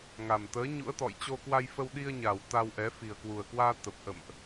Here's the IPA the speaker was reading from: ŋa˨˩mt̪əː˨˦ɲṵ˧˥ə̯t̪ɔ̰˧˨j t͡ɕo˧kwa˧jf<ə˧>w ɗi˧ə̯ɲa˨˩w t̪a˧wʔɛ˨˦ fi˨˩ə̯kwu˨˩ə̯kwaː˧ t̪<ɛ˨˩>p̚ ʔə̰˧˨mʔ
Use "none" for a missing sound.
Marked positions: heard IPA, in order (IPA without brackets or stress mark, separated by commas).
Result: ə˧, ə˨˩